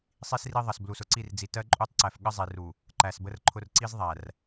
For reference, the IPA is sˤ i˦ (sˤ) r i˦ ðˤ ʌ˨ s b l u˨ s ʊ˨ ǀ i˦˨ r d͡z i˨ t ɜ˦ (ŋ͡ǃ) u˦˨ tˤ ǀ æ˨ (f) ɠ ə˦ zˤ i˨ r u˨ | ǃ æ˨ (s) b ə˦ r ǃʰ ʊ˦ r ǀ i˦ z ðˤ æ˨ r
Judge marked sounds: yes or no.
no, no, yes, yes

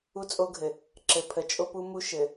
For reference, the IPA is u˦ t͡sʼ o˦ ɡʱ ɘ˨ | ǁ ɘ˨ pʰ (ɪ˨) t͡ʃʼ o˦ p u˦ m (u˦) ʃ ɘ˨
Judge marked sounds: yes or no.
no, yes

